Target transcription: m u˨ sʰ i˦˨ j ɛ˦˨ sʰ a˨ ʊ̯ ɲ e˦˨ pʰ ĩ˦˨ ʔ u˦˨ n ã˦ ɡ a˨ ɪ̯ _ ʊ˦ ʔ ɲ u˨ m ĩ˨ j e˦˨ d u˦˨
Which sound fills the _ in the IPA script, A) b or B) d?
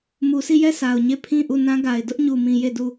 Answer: B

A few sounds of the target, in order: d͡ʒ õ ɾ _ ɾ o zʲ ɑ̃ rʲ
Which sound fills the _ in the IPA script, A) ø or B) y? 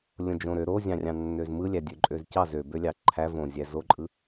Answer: A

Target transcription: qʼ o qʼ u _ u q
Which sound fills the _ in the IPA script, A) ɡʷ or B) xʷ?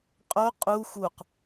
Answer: B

